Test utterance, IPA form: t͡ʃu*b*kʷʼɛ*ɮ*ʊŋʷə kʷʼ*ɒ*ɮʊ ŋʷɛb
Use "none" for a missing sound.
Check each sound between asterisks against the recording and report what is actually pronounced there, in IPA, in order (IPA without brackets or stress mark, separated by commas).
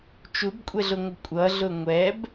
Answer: b, ɮ, ʌ